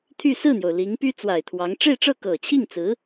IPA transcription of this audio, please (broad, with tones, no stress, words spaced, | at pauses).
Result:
t̪ʰy˥˧ sɹ̩˥˩n̪jo˩ʊ̯ li˧˥ŋpy˥ t͡swa˨˩ɪ̯t̪ʰwɑ˧˥ŋ ʈ͡ʂe˥˧ɪ̯ʈ͡ʂɤ˥˩ kɤ˨˩t͡ɕʰi˥˩ŋt͡sɹ̩˧˥